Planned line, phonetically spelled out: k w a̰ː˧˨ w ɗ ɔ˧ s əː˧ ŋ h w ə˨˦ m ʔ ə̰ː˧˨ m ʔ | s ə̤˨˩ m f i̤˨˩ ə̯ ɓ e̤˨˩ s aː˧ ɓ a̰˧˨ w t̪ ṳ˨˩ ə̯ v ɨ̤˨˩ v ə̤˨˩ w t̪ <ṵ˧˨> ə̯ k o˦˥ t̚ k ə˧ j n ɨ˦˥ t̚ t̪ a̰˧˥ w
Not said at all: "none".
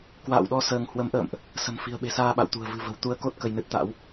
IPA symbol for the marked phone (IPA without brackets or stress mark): u˧